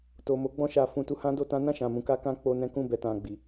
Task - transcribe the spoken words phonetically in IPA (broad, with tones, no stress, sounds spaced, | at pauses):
t o˨ m o˨˦ ɡ͡b ɔ̃˦˨ ʃ a˧ f ũ˧ t u˧ h ã˦ d o˧ t ã˦ n ã˦˨ ʃ ã˨ m ũ˧ k a˦ k ã˦ k͡p o˧ n ɛ̃˦ k ũ˦˨ b ɛ˧ t ã˧ ɡ͡b i˨